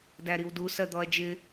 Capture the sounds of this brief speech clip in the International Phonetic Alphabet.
d æ ɾ i w d u s ɜ d̪ ɔ ɐ̯ d͡ʒ ɪ

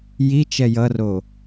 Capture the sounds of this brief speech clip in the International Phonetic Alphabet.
j i t͡ʃ ɛ j ʌ r o

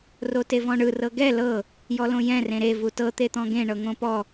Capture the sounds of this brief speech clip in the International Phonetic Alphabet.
r o t e v ɔ̃ ɳ ɯ r ɤ ɡ ɛ l ɤ | j ɔ l õ j ɛ̃ r ẽ ɾ e v u t ɤ t̪ e t̪ ɔ̃ ɡ ẽ ɳ ɤ ŋ õ p ɔ

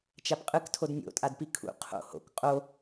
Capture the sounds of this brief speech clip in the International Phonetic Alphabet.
t͡ʃ a p qʼ ɯ k tʰ o d nʲ o̰ tʼ a d p i kʰ ṵ qʰ o̰ h o̰ k qʼ o

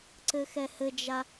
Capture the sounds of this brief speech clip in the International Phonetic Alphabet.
ǀ ɘ x ɛ h ɘ d͡ʒ a

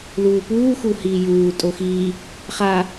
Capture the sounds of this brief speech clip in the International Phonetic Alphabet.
l uː p uː x u h iː j uː tʼ o x iː | χ a

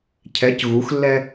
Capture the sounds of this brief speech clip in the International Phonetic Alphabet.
cʰ ɛ c ɣ u x lː ɛ

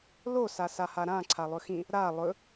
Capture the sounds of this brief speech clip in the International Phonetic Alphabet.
l o s a s a h a ɾ ã ǀʰ a lˠ ɵ x ĩ | ɾ a lˠ ɵ

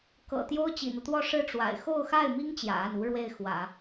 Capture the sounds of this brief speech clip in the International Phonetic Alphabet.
k ɤ̰˨˩ t̪ j o˥ ʊ̯ t͡ɕ ḭ˨˩ n̪ ɤ˦ t̪ w ɔ˥˧ ʂ ɻ̩˥˩ ʈ͡ʂ w a̰˨˩ ɪ̯ x o˥˧ ʊ̯ x a˥˩ ɪ̯ m i˥ ŋ t͡ɕ j ä̰˨˩ a˥˩ n u˥ ɻ w e˥˩ ɪ̯ x w ä̰˨˩˦

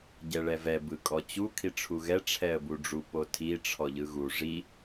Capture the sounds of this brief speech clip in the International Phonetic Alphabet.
ɟ ɛ ɭ ɛ v ɛ b ɯ kʼ ɔ t͡ɕ u kʰ i ʈ͡ʂʰ u ɣ ɛ ʈ͡ʂʰ ɛ ə̯ b u ɖ͡ʐ u p o tʰ i ʈ͡ʂʰ ɔ ʎ ɯ ɣ u ʐ i

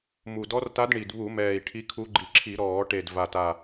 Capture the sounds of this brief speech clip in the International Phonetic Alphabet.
m u˨˩ d ɔ˧˥ r t a˧˥ d ɳ i˨˩ d β u˧˩˧ m ɛː˨˩ i̯ ʈʰ i˧˥ kʰ u˧˥ ɡ͡ǃ i˨˩ ǁʰ i˧˩˧ ɾ ɔː˧˩˧ ʈ e˨˩ d v a˨˩ t a˨˩

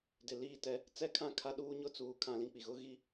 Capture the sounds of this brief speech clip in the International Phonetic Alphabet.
d ɪ˨ l iː˦˨ t ɛ˦ | t͡s ɛ˦ kʰ ã˦ kʰ a˦ ɗ uː˦ ɲ ʊ˦ t͡s uː˨ kʰ ã˦ l ĩ˦ k͡p i˨ ɣ ʊ˦ ɣ i˦

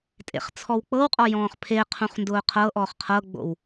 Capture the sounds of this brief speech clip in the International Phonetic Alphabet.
tʼ ḛ χ t͡sʰ ɔ w k͡p ɤ w qʼ ɔ j ɔ̃ː χ pʰ e qʰ ũ χ n d ʊː qʰ ɤ ʔ ɔː χ qʰ ɤ ɡ͡b o̰ w

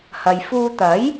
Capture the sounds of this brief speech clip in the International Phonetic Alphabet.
h ɐ˨ j f uː˧ t̪ ɐ˨˥ j

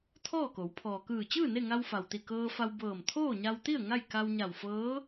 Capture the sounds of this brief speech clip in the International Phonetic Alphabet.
t̪ʰ ɔː˥˨ k o˩˧ w pʰ ɔː˩ k ɯː˧˩ t͡ɕ ɯː˥˨ n e˥˨ ŋ a˧ w f a˩ w t̪ i˧˩ k ɤː˧ f a˧ w b ɤː˧˩ m t̪ʰ oː˥˨ ɲ a˧ w t̪ i˥˨ ə̯ ŋ a˥˨ j k a˧ w ɲ a˧˩ w f ɤː˧˥

